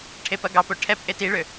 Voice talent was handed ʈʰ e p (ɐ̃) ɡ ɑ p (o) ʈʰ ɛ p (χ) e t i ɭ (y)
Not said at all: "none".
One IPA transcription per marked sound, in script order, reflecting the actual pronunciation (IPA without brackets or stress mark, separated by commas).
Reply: ɐ, o, ʔ, ø